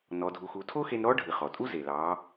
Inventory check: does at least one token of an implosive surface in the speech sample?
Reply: no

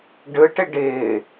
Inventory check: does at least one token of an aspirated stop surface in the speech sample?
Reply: no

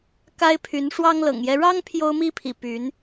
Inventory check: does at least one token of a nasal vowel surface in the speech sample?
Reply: no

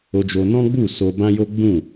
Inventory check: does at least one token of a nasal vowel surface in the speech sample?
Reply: yes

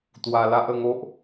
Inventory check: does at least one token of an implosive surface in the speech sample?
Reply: no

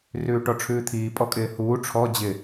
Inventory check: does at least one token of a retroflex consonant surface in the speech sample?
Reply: yes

